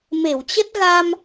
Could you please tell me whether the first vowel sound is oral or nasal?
oral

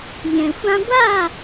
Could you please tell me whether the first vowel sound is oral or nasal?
nasal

